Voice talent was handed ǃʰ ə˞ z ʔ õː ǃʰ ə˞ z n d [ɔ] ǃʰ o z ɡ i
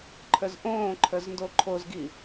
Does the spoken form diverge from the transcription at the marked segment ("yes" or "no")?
yes